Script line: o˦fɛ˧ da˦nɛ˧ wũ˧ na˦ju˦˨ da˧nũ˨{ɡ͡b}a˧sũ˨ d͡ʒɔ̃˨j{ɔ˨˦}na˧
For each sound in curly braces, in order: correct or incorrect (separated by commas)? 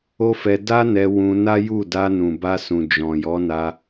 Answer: incorrect, correct